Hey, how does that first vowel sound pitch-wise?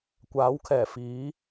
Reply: rising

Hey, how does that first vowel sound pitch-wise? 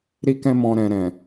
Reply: high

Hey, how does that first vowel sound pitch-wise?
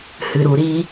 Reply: low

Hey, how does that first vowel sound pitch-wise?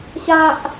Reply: high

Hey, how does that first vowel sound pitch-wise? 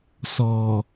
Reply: low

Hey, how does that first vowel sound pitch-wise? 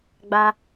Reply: high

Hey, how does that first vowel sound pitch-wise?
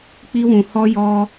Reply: high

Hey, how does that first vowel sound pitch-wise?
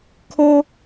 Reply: high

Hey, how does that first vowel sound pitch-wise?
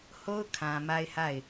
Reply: high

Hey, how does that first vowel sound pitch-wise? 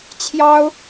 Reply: high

